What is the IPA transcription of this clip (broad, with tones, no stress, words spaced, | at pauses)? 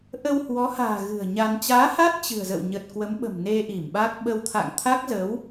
ʔə˧whwɔ˨˦ha̤ː˨˩ ɣɨ̤˨˩ə̯ɲa˧n t͡ɕaː˨˦ ha˦˥t̚ t͡ɕɨ̤˨˩ə̯zə̰˧˨w ɲə˨˩t̚kwə˨˦mɓə̤˨˩m ne˧ʔi˧˩mɓa˦˥k̚ ɓə˧w t̪ʰa̰˧˨ŋt̪ʰa˦˥k̚zə˨˦w